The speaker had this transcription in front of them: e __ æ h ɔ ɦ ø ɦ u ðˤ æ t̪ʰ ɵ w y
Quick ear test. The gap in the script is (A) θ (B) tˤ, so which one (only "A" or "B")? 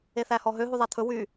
A